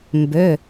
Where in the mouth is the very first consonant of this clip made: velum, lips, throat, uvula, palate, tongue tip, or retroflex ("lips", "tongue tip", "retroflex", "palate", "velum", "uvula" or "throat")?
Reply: lips